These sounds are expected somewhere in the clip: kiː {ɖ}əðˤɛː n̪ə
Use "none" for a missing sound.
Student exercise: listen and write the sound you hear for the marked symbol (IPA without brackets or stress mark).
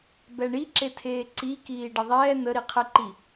ɖ